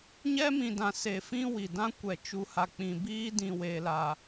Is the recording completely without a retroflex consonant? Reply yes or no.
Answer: yes